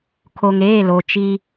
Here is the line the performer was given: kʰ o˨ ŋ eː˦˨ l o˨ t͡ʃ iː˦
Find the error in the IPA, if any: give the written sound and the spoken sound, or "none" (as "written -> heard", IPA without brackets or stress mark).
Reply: none